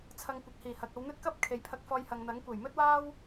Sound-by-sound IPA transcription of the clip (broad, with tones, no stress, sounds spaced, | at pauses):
t͡sʰ ɐ˨ ŋ kʷ ɐ˨ k̚ h iː˨˩ h ɐ˨ k̚ ɐ˨˧ w n̪ ɵ˥ t̚ k ɐ˥ p̚ kʰ e˨˧ j pʰ ɐ˧ k̚ f ɔː˧ j h ɐ˨ ŋ n̪ ɐ˨˥ ŋ kʷ e˨˩ j m ɵ˥ t̚ w aː˥ w